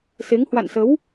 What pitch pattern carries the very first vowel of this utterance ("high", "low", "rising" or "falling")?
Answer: rising